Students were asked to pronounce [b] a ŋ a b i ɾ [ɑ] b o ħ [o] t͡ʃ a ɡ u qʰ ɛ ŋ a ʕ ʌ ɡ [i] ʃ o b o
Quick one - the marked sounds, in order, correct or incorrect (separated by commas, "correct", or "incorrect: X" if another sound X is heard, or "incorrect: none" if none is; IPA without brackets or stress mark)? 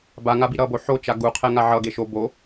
correct, incorrect: ʌ, correct, incorrect: e